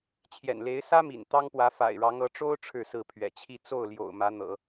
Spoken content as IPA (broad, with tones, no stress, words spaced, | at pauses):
t͡ɕʰjɛ̰˨˩nle˧˥ɪ̯ sä˥mḭ˨˩n t̪ɑ˥ŋpwä˧˥ fa̰˨˩ɪ̯ɻɑ˧˥ŋ ɤ˧˥ʈ͡ʂo˥ʊ̯ ʈ͡ʂʰɻ̩˥˧sɹ̩˥˩pʰɥɛ̰˨˩t͡ɕʰi˥˧ t͡so˥˩ʊ̯ljo̰˨˩ʊ̯ mä˧˥n̪ɤ̰˨˩˦